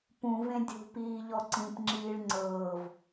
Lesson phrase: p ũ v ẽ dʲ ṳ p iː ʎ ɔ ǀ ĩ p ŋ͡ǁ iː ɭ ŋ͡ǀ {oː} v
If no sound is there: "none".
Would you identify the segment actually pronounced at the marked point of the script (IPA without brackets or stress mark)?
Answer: ɤː